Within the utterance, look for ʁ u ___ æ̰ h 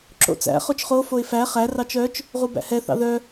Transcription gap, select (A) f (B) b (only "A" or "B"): B